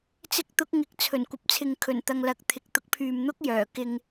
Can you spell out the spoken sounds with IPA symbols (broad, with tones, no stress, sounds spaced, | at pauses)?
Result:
t͡s ɪ˧ k̚ t̪ ʊ˨˥ k̚ ŋ ɪ˨ k̚ t͡sʰ ɵ˨˩ n kʷ ɐ˨˥ p̚ t͡sʰ ɪ˨ ŋ kʰ ɵ˨˩ n t̪ ɐ˨ ŋ l ɐ˨˥ k̚ t̪ʰ ɪ˨ k̚ t̪ ʊ˨˥ k̚ pʰ yː˨ m n̪ ʊ˥ k̚ j œː˨˩ k ɪ˧ ŋ